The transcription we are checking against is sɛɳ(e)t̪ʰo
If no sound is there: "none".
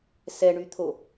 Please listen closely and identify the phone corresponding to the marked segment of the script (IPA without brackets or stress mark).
y